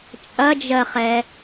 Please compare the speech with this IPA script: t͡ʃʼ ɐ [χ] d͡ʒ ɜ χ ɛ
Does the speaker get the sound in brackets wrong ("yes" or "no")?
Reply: yes